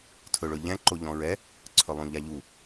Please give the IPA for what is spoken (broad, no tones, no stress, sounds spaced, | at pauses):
tʰ ɵ ɭ ɵ ʎ ɛ̃ ǃ o ʎ ɔ̃ ɹ ɛ | ǀʰ ɵ lˠ ũ ʎ a ʎ u